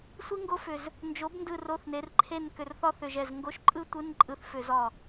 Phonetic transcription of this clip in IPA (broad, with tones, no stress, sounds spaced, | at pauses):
sʷ i˥ ŋ ɡ o˥ f ʏ˧˩ z | n d͡ʒ o˩˥ b n d ɯ˧˩ r o˧˥˧ θ n e˩˥ r ǃʰ e˥˨ n k ʏ˧˩˧ r θ ɒ˥ θ ʏ˧˩ ʒ ɛ˧˩ z ŋ ɡ o˧˥˧ ʃ ǃʼ ɯ˥ tʷ ɯ˧˥˧ n ǃʼ ɯ˧˩ θ f ʏ˧˩˧ z ɒ˧˩